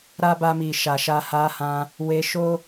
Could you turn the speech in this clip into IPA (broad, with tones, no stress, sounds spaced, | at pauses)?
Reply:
ɾ a˦ b a˧ m i˨ ʃ a˨ ʃ a˧ h a˧ h ã˧ | w e˧ ʃ o˦